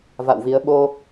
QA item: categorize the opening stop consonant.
implosive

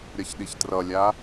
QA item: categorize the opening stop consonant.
implosive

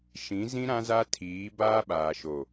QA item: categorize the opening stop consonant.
aspirated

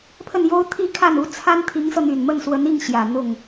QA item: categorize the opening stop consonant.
aspirated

